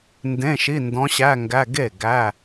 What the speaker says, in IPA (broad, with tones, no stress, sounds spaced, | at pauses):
n d ẽ˧˥˧ ʃ i˧˥˧ n d ɔ̃˧˥ ɕ æ˧˥˧ ŋ ɡ æ˧˥˧ ɡ e˥˩ ɡ æ˧˥˧